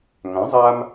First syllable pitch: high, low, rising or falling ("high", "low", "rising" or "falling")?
rising